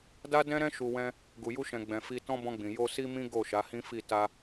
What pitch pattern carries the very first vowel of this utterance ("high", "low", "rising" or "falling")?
high